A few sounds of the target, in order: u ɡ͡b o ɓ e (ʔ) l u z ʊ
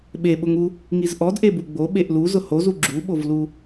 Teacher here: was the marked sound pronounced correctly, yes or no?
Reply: yes